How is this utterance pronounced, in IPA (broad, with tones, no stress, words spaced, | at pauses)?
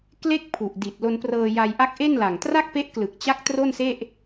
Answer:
kle˥˩k̚ pʰu˨˩ʔdi˨˩t̚ lo˧nprɤː˧ja˧jʔa˦˥k̚ ʔe˥˩nla˨˩ŋ tra˥˩k̚ pe˦˥ʔklɯ˨˩k̚ t͡ɕa˦˥k̚ tro˥˩nse˥˩ʔ